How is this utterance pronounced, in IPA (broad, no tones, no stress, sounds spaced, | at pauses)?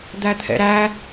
d̪ æ t̪ʰ ɛ̰ ɾ æ